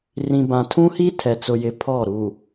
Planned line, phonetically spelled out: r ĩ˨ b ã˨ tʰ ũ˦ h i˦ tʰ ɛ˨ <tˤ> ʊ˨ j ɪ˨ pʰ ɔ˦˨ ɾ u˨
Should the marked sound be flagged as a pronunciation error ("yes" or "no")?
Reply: yes